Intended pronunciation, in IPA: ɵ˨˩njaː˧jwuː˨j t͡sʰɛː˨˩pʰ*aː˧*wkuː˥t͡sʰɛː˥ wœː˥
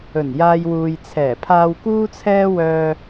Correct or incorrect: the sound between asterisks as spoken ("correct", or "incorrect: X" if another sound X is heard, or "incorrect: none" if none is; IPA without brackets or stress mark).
correct